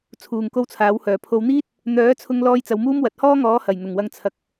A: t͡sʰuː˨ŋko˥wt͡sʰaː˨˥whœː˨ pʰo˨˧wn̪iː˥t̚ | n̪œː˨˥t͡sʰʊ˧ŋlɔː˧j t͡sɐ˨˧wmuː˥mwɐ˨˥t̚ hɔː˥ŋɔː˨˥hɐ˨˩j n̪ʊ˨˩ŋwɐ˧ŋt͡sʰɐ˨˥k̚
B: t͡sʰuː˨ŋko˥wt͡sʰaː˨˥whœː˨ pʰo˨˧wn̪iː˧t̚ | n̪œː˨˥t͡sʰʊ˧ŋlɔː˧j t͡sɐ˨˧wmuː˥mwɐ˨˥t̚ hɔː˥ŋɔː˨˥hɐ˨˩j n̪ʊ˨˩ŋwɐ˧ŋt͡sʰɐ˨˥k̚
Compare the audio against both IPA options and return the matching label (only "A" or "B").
A